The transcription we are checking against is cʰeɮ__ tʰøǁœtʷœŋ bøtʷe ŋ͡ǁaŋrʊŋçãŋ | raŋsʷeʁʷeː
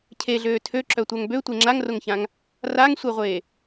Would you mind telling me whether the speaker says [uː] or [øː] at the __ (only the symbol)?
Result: øː